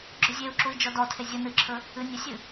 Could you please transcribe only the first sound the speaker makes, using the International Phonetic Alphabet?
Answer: ɡ͡ǁ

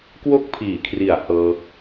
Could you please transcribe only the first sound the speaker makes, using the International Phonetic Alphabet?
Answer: k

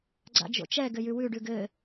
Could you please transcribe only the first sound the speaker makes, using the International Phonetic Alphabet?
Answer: ɡ͡ǀ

